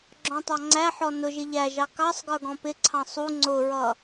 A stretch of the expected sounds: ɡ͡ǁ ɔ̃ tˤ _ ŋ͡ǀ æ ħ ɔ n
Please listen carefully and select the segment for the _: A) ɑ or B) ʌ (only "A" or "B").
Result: A